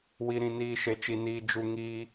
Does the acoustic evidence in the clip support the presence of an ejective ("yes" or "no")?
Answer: no